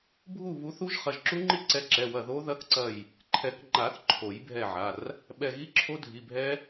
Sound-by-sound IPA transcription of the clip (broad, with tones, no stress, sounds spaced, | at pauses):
bʱ u˦˨ β u˨˦ θ u˦˥ ʒ χ ɐ˩˧˩ ʒ ǁ u˦˥ ŋ͡ǃ i˦˥ ǀ ɛ˨˦ ǁ ɛ˩˧˩ w ɐ˦˨ ð o˦˥ ð ɐ˦˥ k ǀ ɐ˦˨ j | ǃʰ ɛ˨˩˦ k ŋ͡ǃ a˨˩˦ θ ǃʰ o˨˩˦ j bʱ ɛ˦˨ ʕ a˩˧˩ r | ɓ ɛ˦˨ ɣ i˦˥ ǁʰ o˦˥ dʱ i˩˧˩ bʱ ɛ˦˥